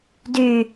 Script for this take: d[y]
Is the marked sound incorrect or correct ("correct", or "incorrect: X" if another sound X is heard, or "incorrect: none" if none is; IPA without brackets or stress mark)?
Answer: correct